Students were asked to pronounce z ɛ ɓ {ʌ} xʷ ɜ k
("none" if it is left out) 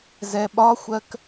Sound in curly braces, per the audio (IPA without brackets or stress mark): ɒ